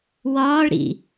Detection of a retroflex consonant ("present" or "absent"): present